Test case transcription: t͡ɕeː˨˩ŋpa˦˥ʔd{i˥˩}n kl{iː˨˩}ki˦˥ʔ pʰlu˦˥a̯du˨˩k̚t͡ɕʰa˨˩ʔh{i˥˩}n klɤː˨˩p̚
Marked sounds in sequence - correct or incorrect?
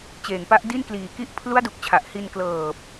correct, correct, incorrect: i˧

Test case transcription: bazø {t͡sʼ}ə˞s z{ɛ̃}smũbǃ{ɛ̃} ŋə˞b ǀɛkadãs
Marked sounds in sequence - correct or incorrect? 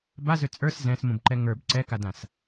correct, correct, incorrect: ɛ

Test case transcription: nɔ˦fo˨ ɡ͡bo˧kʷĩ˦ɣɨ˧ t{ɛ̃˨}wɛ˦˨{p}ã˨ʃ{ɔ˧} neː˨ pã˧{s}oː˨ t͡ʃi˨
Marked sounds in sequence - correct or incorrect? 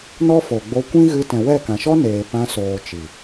correct, incorrect: k, incorrect: ɔ˦, correct

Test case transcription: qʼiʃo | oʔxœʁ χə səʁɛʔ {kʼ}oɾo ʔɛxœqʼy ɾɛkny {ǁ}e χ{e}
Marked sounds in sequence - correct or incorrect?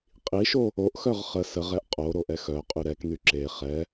incorrect: qʼ, correct, incorrect: ɛ

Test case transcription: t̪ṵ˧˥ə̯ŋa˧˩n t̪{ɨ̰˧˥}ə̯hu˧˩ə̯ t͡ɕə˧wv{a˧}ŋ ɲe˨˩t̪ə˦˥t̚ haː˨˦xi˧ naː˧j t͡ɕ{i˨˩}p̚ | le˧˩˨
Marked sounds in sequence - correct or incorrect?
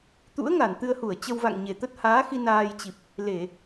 incorrect: ɨ˧, incorrect: a̰˧˨, correct

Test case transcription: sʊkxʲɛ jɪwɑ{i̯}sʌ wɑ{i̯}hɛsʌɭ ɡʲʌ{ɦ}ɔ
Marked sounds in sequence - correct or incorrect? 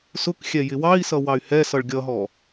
correct, incorrect: y̯, correct

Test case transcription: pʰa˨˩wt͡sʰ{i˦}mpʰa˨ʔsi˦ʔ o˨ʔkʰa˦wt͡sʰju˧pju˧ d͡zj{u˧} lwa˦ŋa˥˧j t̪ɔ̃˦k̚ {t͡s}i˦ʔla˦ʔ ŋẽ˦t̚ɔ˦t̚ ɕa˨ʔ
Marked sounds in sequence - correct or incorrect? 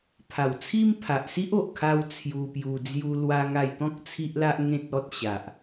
correct, correct, incorrect: t͡sʰ

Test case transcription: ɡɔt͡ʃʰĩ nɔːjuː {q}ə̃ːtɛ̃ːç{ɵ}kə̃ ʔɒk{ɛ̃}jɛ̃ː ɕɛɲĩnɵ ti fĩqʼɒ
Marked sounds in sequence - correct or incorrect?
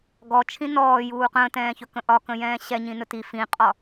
correct, correct, incorrect: ə̃

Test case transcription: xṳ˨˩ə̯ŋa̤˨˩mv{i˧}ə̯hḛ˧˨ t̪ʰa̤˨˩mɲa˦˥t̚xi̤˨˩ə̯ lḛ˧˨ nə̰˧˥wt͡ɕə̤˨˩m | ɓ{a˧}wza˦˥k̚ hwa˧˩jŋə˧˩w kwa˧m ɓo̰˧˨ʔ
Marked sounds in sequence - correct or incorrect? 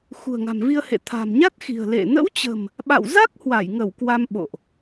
correct, incorrect: a̰˧˨

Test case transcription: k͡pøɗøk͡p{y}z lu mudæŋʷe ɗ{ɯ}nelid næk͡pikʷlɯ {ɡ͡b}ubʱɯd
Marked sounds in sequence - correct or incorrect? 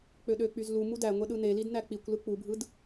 correct, correct, incorrect: k͡p

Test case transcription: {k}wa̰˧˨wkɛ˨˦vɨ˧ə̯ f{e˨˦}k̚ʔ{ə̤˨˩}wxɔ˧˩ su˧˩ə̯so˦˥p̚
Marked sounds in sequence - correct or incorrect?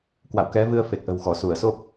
correct, incorrect: e˨˩, correct

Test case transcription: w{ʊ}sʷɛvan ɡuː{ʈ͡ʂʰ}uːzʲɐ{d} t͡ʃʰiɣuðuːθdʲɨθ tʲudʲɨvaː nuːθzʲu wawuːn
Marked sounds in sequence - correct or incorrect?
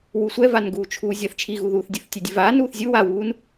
incorrect: u, incorrect: t͡ʃʰ, incorrect: θ

